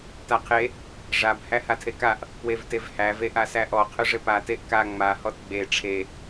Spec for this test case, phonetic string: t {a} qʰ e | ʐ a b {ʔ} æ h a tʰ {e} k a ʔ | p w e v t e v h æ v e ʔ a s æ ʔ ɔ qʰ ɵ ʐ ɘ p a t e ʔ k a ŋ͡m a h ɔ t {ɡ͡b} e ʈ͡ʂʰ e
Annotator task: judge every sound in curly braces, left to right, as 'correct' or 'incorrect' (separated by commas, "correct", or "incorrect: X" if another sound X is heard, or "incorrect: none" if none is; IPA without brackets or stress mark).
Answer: correct, incorrect: h, correct, correct